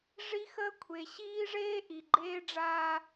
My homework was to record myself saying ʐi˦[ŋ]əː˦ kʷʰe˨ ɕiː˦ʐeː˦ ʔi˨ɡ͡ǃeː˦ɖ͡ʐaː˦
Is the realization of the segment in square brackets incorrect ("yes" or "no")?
yes